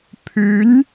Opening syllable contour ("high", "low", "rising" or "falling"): rising